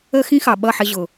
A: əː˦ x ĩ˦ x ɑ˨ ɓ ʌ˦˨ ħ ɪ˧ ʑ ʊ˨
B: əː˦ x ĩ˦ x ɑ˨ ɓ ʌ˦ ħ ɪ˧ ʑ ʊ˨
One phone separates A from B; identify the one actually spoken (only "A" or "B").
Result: A